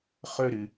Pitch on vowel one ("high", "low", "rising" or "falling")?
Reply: high